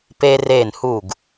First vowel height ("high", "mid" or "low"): mid